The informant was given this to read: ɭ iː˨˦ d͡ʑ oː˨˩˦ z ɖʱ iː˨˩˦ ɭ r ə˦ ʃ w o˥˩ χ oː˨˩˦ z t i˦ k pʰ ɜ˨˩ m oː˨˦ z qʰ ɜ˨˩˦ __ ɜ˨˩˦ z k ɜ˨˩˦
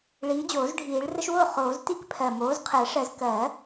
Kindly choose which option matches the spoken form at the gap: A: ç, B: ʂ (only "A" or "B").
B